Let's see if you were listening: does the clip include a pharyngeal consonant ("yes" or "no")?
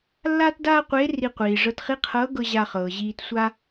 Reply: no